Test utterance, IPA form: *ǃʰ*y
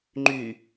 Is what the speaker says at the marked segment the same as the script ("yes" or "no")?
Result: no